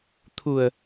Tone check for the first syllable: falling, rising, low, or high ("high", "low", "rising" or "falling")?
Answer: low